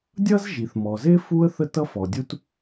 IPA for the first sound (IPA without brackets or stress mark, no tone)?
dʲ